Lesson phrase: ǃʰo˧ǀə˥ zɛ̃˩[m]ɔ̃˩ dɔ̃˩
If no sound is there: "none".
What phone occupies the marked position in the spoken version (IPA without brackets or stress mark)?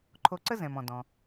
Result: m